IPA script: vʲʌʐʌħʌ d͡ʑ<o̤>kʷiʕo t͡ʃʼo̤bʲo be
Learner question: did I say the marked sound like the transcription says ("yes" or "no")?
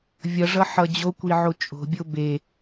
no